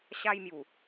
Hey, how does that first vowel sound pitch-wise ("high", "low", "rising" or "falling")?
high